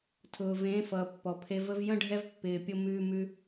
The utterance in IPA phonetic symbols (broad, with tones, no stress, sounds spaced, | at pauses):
tʰ ʊː˨ v ẽː˨˦ f ʌː˨ pː ɔ˨ pʰ e˧ v ə˦ v j ə̃˦ ɖʱ ɛ˦ v pː ɪː˧ pʲ ʊ˦ m ʉː˦ m ʉ˦